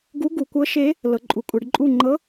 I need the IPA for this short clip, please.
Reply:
ɡ u˧˥ ɡ u˩˧ kʷ ɤ˧˥ ʃ e˧˥ | l ɤ˩˧ ǃʼ u˩˧ kʷʼ ɛ˩˧ ɖ ǃʼ u˥˨ ŋ͡ǃ ɤ˧˥

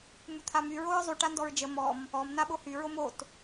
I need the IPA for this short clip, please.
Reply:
m u t̪ʰ a m y ɹ o ɹ zˤ y ʈ a n d ɔ ɹ d͡ʒ ə m ɔ m | ɔ m n a ɓ o h y ɹ o m o t

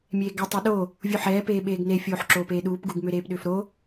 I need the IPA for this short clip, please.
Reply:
mʲ eː ɡ ɐ tˤ ɛ ɗ o | vʲ u ħ ɛː p eː ɓ eː ɡ n e fʲ oː ħ ǁ oː p eː ɗ uː p ɡ u ɡ m ʏ ɾ eː p ɗ ʏː f ɾ o

